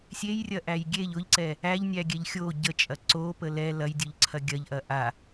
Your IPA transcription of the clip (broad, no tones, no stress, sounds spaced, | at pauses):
sʲ e j rʲ ɐ ʔ æ j ɡʲ e ʎ ʊ ʎ ǀ ɛ | æ ʎ nʲ æ ɡʲ ɛ ʎ xʲ o ɟ ə t͡ʃʼ ɐ ǀ o p ə l ɛ l ɐ j dʲ ʊ ʎ ǀʰ ɐ ɡʲ ɐ ʎ ʔ ɐ ʔ a